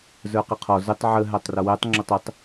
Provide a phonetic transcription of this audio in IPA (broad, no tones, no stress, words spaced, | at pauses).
zə˞qiqʰɔ zɪtˤ ʕə ɦætˤrʌwɛtˤ ŋ͡ǁʊtˤɪtˤ